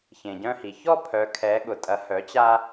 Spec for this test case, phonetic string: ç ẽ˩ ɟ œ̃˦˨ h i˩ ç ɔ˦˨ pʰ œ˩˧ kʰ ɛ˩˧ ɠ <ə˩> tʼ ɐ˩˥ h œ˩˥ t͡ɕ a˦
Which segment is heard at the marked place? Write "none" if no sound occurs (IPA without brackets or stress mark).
ʊ˩